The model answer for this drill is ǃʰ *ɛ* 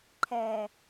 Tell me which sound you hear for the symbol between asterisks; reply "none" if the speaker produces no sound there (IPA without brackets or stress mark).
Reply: ɛ